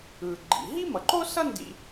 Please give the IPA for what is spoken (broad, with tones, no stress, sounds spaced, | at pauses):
ɯː˩ ɡ͡ǃ ḭ˩ ɦ i˥ m ʌ˩ ǃ o˥ s ʌ˥ n d ḭ˧